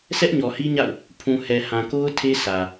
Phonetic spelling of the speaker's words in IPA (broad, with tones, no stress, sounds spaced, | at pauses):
s ɛ˦ ʔ ɲ ɔ˨ h i˦ ɲ a̰˦˨ ʊ̯ | pʰ ũ˨ h ɛ˨ h ã˨ k o˦ ʊ̯ tʰ e˦ sʰ ä˨